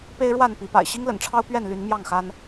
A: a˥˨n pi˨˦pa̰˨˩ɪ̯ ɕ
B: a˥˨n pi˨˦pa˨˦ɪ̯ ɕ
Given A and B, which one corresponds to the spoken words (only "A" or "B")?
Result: A